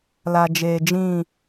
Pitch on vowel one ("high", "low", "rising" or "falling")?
low